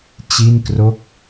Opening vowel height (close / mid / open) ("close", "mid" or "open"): close